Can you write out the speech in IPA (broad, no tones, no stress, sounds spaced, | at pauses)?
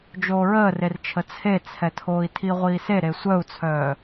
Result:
d͡ʒ oː ɹ əː r e r t͡ʃʰ ə t͡sʰ e t͡sʰ ɛ tʰ oː i̯ tʰ i ʁʷ iː s e ɾ e sʷ œ u̯ t͡sʰ œː